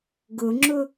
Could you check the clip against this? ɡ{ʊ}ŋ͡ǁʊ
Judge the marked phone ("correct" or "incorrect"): correct